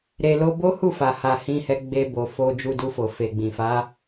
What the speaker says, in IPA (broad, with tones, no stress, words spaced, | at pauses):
ɾe˧lo˦ bo˦hu˦˨fa˨ha˨ hĩ˧hɛ˧ ɡ͡be˧bo˨ fo˧ d͡ʒu˧du˧fo˨ fe˨ɡ͡bĩ˨fa˨˦